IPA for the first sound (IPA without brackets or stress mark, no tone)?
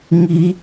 ŋ